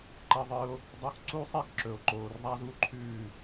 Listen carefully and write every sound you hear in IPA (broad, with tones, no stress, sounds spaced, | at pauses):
ǃ ɐ˧ ðˤ ɨ˧ o̯ | dˤ u˧ x ǀ u˧ sˤ i˧ x ǁ ɵ˩ o̯ ǃ oː˩ r ðˤ a˥ z u˥˩ ǃʰ ʉː˥˩